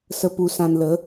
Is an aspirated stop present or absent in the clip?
absent